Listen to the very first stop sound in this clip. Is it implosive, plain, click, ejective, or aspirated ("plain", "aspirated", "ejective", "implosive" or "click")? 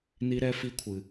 aspirated